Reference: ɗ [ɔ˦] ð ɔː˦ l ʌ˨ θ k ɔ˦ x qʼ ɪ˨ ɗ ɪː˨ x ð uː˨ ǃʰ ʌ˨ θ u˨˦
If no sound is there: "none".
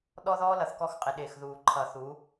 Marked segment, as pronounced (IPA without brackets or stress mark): ɔ˦